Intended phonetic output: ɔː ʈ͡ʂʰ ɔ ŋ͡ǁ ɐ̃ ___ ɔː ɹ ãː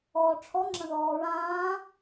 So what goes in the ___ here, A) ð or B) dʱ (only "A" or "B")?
A